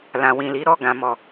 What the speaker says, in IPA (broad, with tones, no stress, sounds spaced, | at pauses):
l ã˨ w ĩ˨ l i˨˦ ɾ ɔ˦˨ ɡ ã˨ m ɔ˨